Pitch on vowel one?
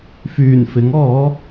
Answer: low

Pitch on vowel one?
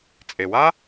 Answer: low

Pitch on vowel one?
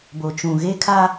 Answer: low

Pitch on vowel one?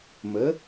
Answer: rising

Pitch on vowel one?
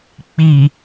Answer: low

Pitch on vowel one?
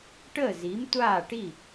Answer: falling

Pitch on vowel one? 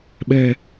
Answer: low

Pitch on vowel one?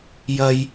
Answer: high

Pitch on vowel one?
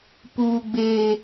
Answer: high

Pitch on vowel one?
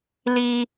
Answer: high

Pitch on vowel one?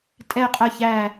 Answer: falling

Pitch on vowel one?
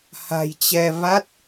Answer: low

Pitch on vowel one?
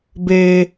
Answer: high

